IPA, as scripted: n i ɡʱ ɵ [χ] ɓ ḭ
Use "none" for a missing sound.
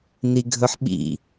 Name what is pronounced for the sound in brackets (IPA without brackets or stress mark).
ħ